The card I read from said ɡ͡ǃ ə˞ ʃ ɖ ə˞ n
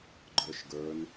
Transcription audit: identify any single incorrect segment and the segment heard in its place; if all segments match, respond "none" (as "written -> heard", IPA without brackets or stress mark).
ɖ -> ɡ